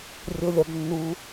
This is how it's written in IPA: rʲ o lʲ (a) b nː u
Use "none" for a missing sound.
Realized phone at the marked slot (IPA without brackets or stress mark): a